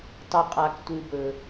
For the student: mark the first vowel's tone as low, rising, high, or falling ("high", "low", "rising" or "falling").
high